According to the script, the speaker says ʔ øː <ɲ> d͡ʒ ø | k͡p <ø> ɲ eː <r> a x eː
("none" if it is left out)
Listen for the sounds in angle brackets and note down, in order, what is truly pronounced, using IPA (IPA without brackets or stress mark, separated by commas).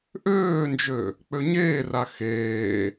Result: n, ø, r